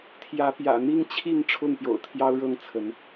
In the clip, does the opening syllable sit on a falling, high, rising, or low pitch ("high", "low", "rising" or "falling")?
rising